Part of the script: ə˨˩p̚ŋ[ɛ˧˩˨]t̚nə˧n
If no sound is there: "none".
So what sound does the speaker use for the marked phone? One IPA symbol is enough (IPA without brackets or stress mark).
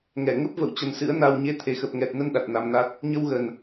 ɛ˨˩